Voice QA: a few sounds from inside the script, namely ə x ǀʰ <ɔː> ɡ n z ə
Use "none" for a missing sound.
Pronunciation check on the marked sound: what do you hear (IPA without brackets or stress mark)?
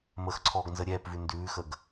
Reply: ɔː